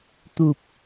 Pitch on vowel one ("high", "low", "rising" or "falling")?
low